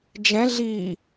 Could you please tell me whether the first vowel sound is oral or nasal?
nasal